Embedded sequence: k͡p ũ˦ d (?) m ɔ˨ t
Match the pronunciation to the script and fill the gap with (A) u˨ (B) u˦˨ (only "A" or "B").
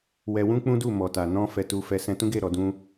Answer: B